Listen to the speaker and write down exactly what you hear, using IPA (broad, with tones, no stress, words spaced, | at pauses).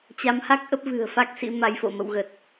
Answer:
t͡ɕa˨˦mha˦˥k̚ʔə˦˥p̚ vɨ̤˨˩ə̯ fa˦˥k̚sḭ˧˥ma˨˦jfo̰˧˨ mə̰˧˨wɣə˨˩t̚